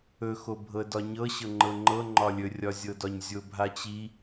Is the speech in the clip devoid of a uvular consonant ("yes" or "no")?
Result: yes